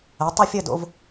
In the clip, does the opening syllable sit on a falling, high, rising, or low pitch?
rising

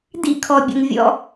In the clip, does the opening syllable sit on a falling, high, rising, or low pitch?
high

